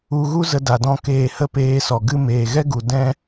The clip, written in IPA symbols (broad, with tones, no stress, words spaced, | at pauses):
u˧ ɣu˦zə˧da˨ dɔ̃˧ keː˧hə˦peː˧sɔ˨ ɡɨ˧meː˨ɣɛ˦ɡu˨ dɛ̃˦